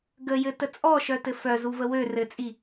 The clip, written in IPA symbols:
ɡ ə j ɘ t ə t͡sʼ ɔ ʃ œ t ɘ f œ z u v ə w ø r ɘ t͡sʼ i

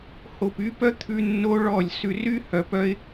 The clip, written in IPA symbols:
h o˨ p y˧ p œ˦ t̪ʰ ʉ˧ nː o˦ ɭ ɔ˦˨ lʲ s ʉ˧ r y˦ h œ˨ p œ˧ ɪ̯

